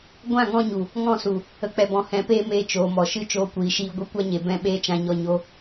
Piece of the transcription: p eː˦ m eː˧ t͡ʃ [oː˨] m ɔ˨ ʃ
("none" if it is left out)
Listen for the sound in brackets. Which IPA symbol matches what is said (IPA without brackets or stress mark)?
oː˨